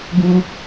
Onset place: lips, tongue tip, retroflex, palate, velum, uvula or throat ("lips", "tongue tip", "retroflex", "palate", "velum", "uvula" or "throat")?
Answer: velum